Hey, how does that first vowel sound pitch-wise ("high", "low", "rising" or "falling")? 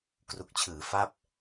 low